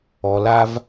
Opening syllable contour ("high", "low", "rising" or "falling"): low